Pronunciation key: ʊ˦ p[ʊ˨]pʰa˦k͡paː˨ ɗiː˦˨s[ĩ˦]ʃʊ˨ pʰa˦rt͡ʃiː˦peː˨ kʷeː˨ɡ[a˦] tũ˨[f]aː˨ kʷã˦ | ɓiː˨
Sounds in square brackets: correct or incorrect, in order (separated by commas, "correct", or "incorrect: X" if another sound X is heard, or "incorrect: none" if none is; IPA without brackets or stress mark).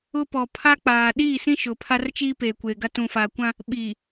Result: incorrect: ɔ˨, correct, correct, correct